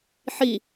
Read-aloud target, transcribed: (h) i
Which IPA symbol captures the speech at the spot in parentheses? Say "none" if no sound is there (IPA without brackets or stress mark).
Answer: ħ